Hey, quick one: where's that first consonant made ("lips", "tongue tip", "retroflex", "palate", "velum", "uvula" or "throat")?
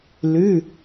tongue tip